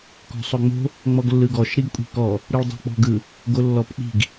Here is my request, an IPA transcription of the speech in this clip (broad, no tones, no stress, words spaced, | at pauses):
kɔ̤sˤoŋ͡mo̤ | ŋ͡mɔɡlːɯɡɔʃ ɾiɡkʷʼi̤kɔ | ɾɯɭdˤo̤k͡pɔ̤ɡɯ | ɡolːɔpk͡pi̤ɡ